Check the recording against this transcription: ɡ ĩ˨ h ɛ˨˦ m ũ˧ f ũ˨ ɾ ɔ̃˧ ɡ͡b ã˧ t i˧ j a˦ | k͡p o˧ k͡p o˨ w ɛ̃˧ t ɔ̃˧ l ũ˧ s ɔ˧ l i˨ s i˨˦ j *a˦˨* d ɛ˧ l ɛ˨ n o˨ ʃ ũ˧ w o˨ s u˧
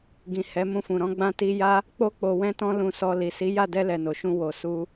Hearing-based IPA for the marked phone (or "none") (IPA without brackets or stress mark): a˦˨